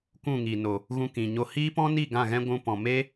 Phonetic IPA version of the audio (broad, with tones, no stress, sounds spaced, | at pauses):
kʷ ũ˦˨ ŋ i˨ n o˨ | ɣ ũ˧ k ĩ˨ ɲ o˧ h iː˦ p ɔ̃˦ n i˦˨ ɡ ã˦˨ ɣ ɛ̃˦ ɡʷ ũ˧ p ɔ̃˨ m e˦